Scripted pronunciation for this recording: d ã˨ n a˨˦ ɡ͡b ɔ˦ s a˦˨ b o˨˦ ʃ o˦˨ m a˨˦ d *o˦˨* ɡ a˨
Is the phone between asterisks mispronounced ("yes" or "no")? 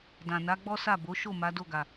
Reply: no